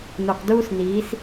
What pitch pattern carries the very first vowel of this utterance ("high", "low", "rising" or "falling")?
low